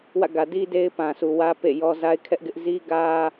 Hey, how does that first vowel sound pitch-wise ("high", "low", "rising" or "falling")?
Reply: falling